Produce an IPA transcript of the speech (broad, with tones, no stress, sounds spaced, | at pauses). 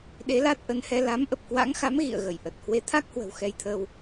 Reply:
ɗ e˨˦ l a˦˥ t̚ ʔ ə˨˦ n h ɛ˧ l a˨˦ m ʔ ə˨˩ p̚ k w a̰˧˥ ŋ x a˨˦ m ɣ ḭ˧˨ ə̯ ɣ ə˧˩ j ʔ ə˨˩ t̚ h w e˨˦ t̪ʰ a˦˥ k̚ h w ə̤˨˩ w x ɛ˧ j t̪ʰ ə˧ w